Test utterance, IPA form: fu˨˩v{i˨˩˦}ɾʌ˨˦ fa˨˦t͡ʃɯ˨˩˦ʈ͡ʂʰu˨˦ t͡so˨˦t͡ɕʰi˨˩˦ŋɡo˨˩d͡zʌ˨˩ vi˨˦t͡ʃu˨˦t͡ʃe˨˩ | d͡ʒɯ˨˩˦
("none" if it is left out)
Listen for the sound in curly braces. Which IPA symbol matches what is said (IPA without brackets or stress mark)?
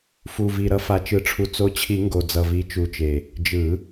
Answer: i˨˩